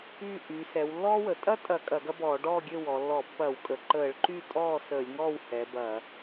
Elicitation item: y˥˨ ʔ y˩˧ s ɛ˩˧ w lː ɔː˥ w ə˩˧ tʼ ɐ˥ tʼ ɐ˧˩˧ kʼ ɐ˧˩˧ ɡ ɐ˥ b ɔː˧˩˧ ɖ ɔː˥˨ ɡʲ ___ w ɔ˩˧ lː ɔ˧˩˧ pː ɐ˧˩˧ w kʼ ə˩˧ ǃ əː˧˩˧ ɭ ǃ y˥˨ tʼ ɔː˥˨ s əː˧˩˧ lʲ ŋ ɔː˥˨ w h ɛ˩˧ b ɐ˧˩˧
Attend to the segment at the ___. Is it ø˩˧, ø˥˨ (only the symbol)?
ø˥˨